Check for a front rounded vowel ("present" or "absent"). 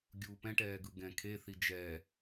absent